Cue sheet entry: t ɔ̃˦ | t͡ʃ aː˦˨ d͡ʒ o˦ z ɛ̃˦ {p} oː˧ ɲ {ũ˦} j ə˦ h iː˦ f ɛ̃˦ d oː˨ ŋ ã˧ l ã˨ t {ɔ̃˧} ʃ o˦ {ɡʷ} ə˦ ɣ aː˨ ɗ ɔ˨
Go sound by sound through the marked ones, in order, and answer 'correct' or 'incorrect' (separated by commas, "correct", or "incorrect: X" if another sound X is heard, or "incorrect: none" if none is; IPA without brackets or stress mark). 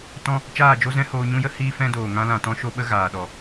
incorrect: h, correct, correct, incorrect: ɓ